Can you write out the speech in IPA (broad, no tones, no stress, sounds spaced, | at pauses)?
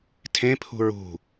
tʰ ẽ pʰ ṳ ɹ ṳ